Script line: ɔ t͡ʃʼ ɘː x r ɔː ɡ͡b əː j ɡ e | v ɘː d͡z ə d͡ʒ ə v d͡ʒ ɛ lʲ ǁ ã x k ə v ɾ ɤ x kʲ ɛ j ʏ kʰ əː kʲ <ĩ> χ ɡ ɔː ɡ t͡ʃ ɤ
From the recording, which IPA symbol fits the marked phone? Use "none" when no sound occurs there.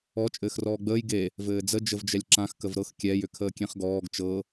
ẽ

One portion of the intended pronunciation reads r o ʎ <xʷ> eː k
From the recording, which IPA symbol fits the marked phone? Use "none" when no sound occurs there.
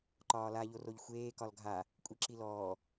xʷ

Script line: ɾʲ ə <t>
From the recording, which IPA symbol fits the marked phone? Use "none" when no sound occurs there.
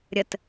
t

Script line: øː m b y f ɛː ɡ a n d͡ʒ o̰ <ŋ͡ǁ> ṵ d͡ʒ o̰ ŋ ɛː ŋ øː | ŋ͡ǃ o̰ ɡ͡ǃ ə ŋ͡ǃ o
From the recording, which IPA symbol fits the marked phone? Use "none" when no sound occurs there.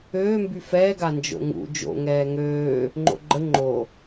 ŋ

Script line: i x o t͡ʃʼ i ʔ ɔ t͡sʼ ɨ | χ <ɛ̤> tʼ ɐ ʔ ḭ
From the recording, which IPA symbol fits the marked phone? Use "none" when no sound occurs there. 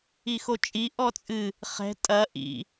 ɛ̤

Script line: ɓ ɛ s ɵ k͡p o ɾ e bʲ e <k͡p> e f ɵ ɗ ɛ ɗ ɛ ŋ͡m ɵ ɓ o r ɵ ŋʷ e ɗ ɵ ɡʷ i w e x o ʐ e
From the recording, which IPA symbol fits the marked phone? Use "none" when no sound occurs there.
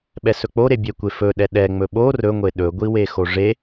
kʷ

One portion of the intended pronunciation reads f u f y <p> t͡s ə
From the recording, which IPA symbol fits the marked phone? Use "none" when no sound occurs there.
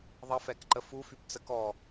p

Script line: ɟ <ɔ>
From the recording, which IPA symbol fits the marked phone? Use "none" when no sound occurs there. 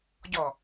ɔ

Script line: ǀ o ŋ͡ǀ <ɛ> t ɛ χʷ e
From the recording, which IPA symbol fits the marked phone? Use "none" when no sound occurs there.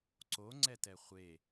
ɛ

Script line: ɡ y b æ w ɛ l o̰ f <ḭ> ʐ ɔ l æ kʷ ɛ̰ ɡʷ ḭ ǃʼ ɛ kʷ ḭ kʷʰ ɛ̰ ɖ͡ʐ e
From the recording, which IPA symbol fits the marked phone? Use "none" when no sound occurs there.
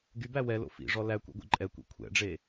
ḭ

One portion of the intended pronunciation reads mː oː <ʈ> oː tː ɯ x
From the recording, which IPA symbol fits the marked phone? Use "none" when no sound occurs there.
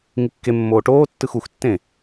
ʈ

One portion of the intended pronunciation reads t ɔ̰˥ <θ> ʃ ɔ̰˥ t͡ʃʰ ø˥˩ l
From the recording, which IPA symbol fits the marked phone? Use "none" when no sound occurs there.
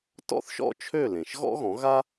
θ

